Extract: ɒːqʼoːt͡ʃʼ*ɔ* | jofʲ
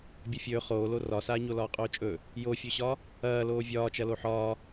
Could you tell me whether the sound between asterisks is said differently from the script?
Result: yes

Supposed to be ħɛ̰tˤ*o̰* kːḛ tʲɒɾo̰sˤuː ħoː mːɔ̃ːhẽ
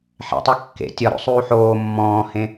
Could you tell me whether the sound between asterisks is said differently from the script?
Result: yes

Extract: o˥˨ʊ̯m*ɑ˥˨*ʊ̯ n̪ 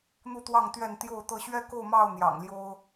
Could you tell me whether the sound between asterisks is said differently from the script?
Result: no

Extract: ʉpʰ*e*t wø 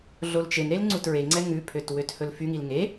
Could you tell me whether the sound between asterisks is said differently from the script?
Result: yes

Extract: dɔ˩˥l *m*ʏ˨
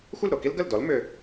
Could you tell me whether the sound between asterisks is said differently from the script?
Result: no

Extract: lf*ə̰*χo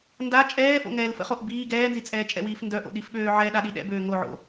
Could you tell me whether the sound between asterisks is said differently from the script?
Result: no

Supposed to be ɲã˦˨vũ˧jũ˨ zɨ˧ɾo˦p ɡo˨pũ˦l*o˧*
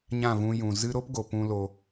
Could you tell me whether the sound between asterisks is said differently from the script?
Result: no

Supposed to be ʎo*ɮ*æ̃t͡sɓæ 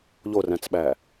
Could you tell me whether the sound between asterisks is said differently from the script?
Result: yes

